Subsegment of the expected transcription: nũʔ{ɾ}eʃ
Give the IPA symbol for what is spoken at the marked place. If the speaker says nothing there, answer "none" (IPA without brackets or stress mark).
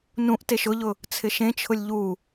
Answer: t